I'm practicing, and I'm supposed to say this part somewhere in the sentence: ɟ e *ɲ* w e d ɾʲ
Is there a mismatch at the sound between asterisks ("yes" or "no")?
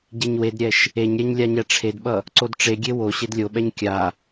no